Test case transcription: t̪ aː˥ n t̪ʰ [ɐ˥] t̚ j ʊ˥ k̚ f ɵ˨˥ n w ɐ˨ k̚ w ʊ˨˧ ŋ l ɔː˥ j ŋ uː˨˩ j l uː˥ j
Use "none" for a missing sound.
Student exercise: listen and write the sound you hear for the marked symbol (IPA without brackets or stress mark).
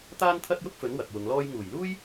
ɐ˥